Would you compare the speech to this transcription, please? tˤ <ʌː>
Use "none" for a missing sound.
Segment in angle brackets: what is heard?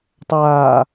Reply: aː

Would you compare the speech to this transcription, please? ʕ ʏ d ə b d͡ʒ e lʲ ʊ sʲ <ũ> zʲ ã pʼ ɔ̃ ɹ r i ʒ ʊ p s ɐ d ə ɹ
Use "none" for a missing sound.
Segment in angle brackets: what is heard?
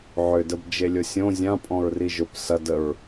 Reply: õ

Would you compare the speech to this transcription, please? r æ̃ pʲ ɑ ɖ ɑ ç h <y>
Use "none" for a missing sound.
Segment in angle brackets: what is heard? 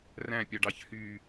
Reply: y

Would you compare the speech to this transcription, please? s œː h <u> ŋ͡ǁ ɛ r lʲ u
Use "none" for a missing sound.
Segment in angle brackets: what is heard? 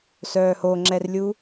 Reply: o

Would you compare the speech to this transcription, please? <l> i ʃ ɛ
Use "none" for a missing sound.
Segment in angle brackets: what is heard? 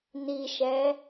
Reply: n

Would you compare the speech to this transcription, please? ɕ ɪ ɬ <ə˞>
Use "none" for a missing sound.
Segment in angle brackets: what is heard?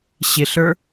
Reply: ə˞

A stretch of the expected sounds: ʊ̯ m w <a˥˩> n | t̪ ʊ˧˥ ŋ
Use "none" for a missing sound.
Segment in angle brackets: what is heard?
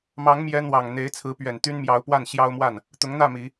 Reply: a˥˩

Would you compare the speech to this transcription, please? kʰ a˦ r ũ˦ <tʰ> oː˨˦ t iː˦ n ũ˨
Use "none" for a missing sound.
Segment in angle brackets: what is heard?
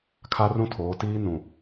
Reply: tʰ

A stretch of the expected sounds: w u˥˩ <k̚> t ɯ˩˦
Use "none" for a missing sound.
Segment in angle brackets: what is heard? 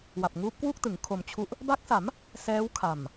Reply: k̚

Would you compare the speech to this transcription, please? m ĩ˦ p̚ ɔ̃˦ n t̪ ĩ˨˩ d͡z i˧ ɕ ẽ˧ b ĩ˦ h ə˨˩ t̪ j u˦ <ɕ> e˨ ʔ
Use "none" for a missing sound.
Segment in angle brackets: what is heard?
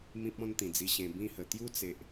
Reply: t͡s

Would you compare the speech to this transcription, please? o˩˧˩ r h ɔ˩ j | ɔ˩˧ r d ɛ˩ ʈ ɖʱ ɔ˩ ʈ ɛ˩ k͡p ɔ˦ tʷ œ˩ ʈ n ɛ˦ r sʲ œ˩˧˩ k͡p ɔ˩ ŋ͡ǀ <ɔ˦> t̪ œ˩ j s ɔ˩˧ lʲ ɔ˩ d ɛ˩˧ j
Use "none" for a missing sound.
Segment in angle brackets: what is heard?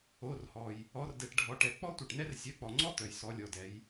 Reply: ɔ˦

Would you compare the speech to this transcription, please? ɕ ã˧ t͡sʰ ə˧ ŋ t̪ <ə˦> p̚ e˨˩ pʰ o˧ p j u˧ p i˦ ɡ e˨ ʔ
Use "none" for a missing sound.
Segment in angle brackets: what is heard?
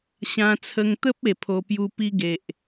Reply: ə˦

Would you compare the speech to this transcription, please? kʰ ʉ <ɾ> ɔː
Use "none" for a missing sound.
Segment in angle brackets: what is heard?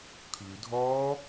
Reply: dʱ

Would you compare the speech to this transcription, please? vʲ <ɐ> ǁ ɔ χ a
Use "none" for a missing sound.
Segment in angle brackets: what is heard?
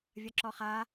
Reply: ɐ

